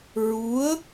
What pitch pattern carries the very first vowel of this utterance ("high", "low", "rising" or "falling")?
rising